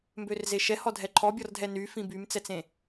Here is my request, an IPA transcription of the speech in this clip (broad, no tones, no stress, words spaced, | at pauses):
mbørzeʃɛhɔ dʱɛǃʰɔbʲɔrdʱɛ ny fĩbymt͡sɛt͡sẽ